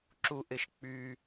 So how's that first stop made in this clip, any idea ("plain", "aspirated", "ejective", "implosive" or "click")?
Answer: click